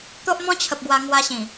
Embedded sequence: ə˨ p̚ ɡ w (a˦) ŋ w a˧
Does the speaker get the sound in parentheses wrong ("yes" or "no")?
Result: yes